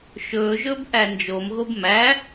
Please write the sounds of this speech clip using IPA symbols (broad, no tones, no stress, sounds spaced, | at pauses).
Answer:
ʃ ɵː ʒ ɵː b ʔ æ n d͡ʒ o m ɣ o b m æ